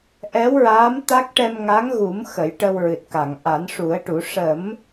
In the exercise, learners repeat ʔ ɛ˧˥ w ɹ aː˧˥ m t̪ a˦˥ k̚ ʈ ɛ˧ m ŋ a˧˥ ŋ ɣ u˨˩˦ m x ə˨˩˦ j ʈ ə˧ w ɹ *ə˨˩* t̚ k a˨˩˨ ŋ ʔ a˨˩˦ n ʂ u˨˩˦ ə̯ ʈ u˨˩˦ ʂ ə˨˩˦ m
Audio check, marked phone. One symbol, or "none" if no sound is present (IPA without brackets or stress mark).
ɨ˨˩